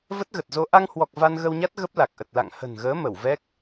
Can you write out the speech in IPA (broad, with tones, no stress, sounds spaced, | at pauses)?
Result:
v ə˦˥ t̚ ɣ ə˨˩ t̚ z o˧ ʔ a˧ ŋ h w ɔ˨˩ k̚ v a˧ n ɣ ə˧ w ɲ a˦˥ t̚ ɣ ə˦˥ p̚ l a˨˩ k̚ ʔ ə˨˩ t̚ l a̰˧˨ ŋ h ə̤˨˩ n ɣ əː˨˦ m ə˧˩ w v ɛ˦˥ k̚